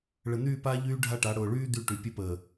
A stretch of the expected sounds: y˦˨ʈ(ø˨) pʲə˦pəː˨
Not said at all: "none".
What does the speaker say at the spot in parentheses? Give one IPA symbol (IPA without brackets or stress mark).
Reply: y˨